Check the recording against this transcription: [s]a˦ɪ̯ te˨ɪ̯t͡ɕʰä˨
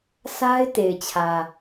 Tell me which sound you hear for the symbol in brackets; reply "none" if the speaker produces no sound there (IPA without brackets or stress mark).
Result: s